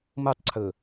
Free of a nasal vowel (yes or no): yes